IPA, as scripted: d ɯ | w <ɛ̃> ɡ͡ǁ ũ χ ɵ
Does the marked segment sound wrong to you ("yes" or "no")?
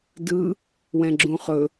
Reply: no